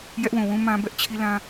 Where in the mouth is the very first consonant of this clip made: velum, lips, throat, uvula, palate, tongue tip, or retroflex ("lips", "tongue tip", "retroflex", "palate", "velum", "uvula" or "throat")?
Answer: palate